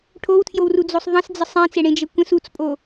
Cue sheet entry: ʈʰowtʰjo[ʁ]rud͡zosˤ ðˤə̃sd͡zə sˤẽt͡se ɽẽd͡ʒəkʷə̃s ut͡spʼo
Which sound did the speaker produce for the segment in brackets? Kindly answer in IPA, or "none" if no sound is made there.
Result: w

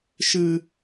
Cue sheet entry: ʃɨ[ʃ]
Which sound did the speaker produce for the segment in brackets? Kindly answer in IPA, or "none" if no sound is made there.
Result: none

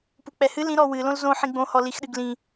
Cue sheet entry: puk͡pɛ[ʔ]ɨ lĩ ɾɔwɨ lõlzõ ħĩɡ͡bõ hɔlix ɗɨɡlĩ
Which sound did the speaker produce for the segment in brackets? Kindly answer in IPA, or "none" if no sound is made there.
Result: h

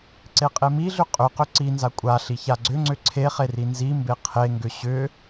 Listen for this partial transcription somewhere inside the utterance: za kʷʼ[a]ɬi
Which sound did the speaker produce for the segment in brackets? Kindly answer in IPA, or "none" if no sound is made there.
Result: a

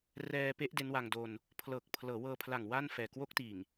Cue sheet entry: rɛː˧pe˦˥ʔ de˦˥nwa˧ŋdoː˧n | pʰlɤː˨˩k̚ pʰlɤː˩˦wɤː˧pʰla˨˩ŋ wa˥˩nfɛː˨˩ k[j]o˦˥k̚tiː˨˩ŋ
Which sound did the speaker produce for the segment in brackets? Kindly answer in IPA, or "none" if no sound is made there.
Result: w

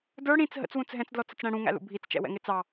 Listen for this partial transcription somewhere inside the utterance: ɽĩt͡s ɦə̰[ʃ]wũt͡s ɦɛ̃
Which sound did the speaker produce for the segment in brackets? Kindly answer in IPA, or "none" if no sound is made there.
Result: t͡s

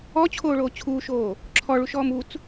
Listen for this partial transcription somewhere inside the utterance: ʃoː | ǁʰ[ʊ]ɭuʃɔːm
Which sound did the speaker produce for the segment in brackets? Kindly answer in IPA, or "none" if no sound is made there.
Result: ɔ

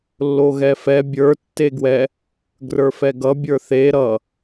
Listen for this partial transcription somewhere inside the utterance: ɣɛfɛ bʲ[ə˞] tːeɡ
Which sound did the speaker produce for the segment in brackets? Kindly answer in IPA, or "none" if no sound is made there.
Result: ə˞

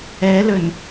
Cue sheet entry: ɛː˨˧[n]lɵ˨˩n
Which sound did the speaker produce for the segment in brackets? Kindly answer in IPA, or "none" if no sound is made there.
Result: none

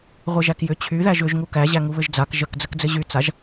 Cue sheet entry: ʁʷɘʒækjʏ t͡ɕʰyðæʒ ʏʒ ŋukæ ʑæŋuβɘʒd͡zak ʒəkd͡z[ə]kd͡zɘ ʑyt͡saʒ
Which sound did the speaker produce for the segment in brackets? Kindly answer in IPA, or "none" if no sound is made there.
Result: ə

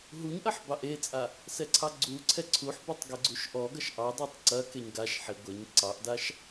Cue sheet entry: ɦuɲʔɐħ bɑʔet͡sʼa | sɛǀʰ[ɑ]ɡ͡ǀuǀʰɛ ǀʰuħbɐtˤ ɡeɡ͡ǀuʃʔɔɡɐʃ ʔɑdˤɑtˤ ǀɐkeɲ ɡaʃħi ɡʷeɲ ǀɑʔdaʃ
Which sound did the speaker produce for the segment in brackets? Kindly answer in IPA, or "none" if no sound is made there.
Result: ɑ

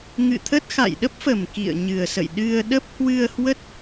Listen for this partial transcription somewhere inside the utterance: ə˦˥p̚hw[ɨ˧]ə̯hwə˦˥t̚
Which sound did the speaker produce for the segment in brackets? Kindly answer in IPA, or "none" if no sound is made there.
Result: ɨ˧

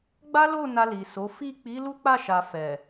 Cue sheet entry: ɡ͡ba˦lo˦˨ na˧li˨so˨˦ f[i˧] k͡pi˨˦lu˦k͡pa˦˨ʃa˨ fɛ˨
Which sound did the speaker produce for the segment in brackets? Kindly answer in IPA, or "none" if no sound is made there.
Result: i˦˨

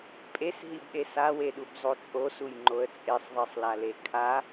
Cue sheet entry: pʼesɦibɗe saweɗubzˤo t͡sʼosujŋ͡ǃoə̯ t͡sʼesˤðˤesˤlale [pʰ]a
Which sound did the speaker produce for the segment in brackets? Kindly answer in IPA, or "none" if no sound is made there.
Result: kʰ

